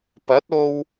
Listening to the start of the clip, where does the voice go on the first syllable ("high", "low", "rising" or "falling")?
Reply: rising